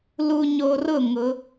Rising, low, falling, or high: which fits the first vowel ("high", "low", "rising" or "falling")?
low